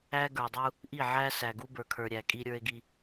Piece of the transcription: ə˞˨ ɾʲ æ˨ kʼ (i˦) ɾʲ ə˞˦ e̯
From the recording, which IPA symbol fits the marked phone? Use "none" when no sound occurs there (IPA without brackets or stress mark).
i˦